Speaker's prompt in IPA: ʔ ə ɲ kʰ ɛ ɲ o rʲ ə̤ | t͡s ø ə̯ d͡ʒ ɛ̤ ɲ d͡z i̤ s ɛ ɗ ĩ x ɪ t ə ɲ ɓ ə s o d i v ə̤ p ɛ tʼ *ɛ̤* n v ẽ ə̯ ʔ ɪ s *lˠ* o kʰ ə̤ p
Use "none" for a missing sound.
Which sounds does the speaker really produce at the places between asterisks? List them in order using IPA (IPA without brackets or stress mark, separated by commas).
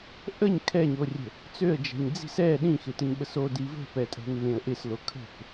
ɛ̤, l